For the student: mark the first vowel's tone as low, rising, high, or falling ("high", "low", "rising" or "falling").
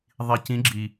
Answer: low